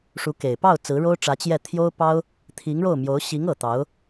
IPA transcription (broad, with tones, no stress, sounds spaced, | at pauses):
ʂ u˧˥ k e˨˩ ɪ̯ p ɑ˥˩ ʊ̯ t͡s ɹ̩˧˥ ɻ o˥ ʊ̯ ʈ͡ʂ ä˧˥ t͡ɕ j ɛ˥˩ t̪ʰ j o˥ ʊ̯ p ɑ˥ ʊ̯ | t̪ʰ i˧˥ ŋ ɻ o˥˩ ʊ̯ m j o˧˥ ʊ̯ ɕ i˧˥ ŋ ɤ˨˩ t̪ ɑ˧˥ ʊ̯